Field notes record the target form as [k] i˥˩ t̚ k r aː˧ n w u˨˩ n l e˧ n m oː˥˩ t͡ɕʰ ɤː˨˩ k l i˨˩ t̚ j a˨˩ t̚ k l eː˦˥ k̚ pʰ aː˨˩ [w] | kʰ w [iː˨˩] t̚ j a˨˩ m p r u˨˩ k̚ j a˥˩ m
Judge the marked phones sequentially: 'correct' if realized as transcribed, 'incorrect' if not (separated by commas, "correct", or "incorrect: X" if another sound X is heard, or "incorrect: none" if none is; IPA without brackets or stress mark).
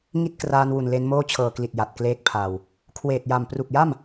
incorrect: ŋ, correct, incorrect: eː˨˩